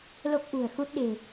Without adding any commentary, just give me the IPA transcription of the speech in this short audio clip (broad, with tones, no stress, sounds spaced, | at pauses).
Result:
l o˦˥ k̚ ʔ ṳ˨˩ ə̯ x u˦˥ t̚ ɗ e̤˨˩